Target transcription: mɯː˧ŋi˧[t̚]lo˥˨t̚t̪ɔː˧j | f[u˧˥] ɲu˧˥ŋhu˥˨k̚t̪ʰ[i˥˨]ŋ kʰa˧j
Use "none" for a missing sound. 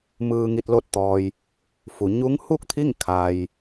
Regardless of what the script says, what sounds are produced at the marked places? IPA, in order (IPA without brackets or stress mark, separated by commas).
t̚, u˩˧, i˥˨